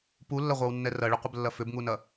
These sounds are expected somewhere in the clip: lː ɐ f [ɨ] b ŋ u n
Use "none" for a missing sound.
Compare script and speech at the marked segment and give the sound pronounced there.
ʏ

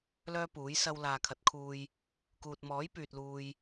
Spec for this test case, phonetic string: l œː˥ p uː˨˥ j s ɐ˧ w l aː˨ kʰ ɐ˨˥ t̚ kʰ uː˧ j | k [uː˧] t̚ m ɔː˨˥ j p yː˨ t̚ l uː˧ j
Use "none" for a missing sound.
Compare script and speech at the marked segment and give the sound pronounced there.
uː˨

